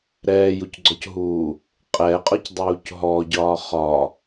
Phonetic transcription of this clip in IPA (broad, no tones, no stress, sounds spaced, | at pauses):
ɾ ɛː j u c ɡ͡ǀ ɔ c ɦ uː | qʼ ɛ qʼ ɒ c dˤ uː c ɦ ɔ ɟ ɒː χ ɒ